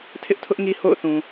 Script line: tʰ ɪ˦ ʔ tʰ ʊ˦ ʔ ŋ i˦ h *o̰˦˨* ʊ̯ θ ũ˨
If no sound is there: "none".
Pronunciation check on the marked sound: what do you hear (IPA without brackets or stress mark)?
o̰˦˨